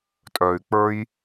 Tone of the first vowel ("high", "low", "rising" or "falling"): low